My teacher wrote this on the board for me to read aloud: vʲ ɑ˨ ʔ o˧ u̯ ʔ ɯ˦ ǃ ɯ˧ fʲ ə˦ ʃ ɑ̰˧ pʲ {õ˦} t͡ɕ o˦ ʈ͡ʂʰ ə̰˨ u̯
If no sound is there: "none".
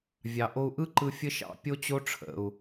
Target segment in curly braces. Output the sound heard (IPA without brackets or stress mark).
o˦